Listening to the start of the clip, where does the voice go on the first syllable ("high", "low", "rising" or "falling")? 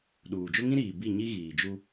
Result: low